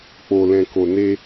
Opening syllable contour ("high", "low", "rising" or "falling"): low